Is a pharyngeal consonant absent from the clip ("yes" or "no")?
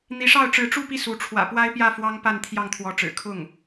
yes